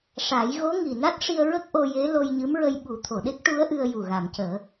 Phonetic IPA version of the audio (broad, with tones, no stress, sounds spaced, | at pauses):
ʂ a˨˩˦ j ɣ o˧˥ ŋ i˨˩ n a˦˥ t̚ ʂ i˧ ə̯ ɹ ə˦˥ k̚ ʔ o˧ j e˧˥ l o˧ j ɲ ɨ˧˥ m ɹ ə˧ j ɓ u˨˩˦ t̪ʰ o˨˩˨ ɗ e˦˥ k̚ ʈ u˧˥ ə̯ ʔ ɨ˧ ə̯ j u˨˩ ɣ a˨˩˨ m c əː˨˩˦